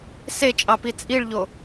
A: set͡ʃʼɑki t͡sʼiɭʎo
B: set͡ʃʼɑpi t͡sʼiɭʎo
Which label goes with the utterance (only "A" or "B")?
B